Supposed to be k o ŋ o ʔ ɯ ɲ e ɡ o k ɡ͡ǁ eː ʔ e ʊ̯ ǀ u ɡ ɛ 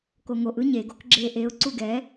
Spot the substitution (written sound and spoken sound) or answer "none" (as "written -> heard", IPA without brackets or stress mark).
none